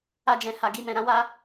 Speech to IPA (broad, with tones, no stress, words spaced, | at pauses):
a˦d͡ʒɛ̃˧ ha˧ɡi˧ mɛ̃˧ɾã˦wa˦